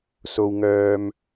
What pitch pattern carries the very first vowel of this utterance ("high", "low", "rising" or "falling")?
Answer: high